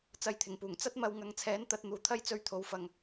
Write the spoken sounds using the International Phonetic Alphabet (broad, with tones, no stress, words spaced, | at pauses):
t͡sɐ˧jt̪ʰɪ˨˩ŋpuː˨˩ŋ t͡sɐ˥t̚mɐ˧w ŋɐ˨˧ŋt͡sʰɛː˨˥nt̪ɐ˧t̚ n̪uː˨t̪ʰɐ˥jt͡sɵ˧ɥ t̪ʰo˨˧wfɐ˨ŋ